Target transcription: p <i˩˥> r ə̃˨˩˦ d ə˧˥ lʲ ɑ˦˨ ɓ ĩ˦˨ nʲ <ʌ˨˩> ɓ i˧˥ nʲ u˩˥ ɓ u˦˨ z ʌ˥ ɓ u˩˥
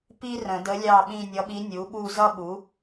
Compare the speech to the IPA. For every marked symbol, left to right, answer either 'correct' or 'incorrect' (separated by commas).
incorrect, incorrect